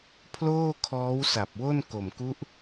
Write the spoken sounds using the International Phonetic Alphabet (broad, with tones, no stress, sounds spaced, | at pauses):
pʰ l oː˥˩ kʰ ɔː˦˥ w s a˨˩ p̚ w o˥˩ n k o˨˩ m k u˦˥ ʔ